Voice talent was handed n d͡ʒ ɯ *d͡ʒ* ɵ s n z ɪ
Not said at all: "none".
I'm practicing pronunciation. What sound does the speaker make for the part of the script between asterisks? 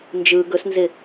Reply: ɡ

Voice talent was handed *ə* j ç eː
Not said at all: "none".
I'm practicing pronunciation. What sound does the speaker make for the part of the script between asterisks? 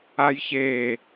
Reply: a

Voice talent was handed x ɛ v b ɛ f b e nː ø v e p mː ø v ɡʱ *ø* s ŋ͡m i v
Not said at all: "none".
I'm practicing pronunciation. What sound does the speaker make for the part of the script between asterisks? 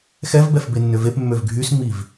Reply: y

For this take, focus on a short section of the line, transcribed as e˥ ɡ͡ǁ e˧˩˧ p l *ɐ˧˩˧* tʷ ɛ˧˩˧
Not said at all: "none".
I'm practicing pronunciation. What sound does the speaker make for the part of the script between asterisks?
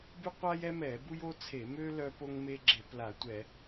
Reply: a˧˩˧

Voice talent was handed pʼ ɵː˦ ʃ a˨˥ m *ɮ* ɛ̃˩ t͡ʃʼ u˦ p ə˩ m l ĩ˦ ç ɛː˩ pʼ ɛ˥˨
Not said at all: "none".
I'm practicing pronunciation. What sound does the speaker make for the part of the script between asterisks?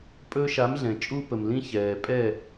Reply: ɮ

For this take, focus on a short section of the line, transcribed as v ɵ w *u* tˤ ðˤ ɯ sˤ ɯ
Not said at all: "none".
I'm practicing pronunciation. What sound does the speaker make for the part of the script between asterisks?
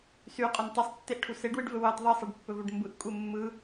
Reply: ɯ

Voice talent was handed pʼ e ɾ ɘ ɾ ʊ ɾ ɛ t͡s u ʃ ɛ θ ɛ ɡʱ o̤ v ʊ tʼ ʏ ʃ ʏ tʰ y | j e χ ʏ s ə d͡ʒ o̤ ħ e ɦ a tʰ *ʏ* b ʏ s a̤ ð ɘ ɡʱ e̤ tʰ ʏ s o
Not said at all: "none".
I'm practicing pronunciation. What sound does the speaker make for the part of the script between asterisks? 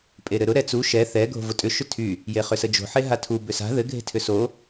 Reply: u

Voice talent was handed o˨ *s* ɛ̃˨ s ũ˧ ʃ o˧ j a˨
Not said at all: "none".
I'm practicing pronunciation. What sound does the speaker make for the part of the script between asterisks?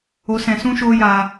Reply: s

